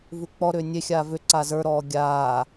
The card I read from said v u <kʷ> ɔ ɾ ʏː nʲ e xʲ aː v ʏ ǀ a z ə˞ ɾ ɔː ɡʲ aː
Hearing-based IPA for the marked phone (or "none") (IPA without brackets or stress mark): k͡p